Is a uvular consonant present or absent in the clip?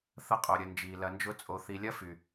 present